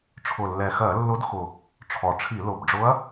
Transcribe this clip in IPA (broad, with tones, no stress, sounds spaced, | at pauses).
ʈ͡ʂʰ ʊ˨˩ lː ɛ˨˩ x ɜ˧˩˧ lː ʊ˧˥ d x ʊ˨˩ | ʈ͡ʂʰ ɔ˨˩ ʈ͡ʂʰ i˧˩˧ l ʊ˨˩ b ɖ͡ʐ ʊ˧˥ ɐ̯